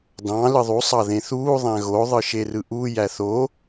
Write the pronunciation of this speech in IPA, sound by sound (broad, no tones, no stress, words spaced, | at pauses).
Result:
dɑ̃ lɯðˤu sˤɑðẽθuː ðˤæ̃ɣo ðˤɯʃerɯʔu jæθo